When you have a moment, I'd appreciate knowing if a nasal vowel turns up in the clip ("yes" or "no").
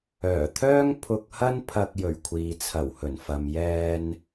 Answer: no